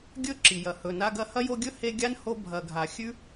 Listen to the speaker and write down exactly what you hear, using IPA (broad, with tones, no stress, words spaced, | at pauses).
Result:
ɡʲɵ˦ ǁi˩jɐ˩ hɵ˨na˦ɡɐ˥ hɐ˥jo˦ɡʲɵ˥ he˦ɡʲa˥n ho˦ bʱɐ˨ ɡʱa˨ xʲʉ˥